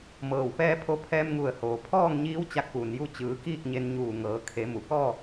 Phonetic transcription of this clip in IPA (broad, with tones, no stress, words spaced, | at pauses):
mɤː˧˩wpɛː˥˨ pʰo˧pʰɛː˧mŋu˧˩ə̯ hoː˩pʰɔː˥˨ŋɲiː˧˥w t͡ɕa˧k̚puː˩nju˧˥ t͡ɕɯː˩˧ kiː˥˨k̚ɲe˧nɲuː˧˩ ŋɤː˩˧kʰe˩˧ mu˩kɔː˥˨